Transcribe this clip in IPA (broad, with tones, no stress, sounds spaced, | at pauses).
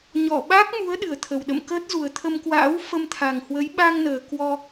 ɲ ɔ˧˩ ɓ a˦˥ k̚ m u˨˦ ə̯ ɗ ɨ˨˩ ə̯ t̪ʰ ə˨˩ w ɗ ə̰˧˨ m k əː˦˥ t̚ z u˨˩ ə̯ t̪ʰ ə˧ m k w a̰ː˧˥ w f ə˧ m t̪ʰ a˨˩ ŋ h w ə˨˦ j ɓ a˧ ŋ n əː˨˩ k w ɔ˧